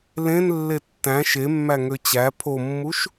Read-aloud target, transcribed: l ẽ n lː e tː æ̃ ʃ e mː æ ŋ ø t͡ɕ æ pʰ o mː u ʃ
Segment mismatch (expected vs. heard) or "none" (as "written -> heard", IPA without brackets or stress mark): none